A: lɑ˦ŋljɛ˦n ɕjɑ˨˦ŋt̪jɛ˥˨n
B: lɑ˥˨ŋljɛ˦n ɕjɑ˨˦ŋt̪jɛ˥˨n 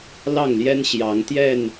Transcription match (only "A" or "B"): B